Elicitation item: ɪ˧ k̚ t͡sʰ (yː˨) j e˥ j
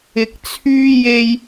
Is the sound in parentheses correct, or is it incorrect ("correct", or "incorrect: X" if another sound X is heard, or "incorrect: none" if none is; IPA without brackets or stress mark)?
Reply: incorrect: yː˥